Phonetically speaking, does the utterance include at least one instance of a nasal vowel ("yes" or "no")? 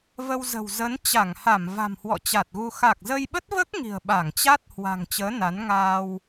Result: no